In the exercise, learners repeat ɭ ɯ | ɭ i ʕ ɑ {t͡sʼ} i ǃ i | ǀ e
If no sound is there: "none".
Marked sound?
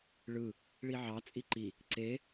t͡sʼ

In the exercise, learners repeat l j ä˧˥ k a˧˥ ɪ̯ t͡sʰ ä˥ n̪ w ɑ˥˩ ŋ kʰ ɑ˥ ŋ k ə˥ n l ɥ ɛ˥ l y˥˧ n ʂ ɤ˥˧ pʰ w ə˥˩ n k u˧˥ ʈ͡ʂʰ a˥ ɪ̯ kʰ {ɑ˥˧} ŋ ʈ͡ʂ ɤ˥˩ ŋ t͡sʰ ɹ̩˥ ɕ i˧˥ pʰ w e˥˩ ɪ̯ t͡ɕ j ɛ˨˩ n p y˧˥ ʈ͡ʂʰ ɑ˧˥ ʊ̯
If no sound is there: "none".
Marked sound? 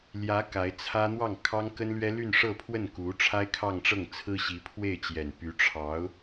ɑ˥˧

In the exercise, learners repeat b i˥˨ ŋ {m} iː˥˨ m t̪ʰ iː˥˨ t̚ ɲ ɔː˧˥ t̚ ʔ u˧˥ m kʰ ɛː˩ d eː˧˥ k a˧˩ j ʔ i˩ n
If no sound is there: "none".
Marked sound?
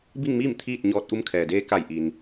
m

